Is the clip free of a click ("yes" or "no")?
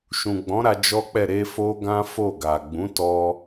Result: yes